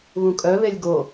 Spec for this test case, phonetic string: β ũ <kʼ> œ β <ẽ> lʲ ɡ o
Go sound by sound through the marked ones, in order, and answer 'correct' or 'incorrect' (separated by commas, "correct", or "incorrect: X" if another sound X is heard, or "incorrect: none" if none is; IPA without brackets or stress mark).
correct, incorrect: e